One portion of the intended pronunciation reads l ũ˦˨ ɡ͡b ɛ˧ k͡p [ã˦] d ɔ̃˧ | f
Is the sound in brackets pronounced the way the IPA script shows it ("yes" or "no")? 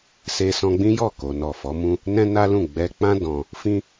yes